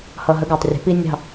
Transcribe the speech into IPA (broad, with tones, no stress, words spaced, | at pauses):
hʌ˨ɦə˨˦ɡəː˨tˤrʲə̤˨˦ pi˦nʲɑ̤˦˨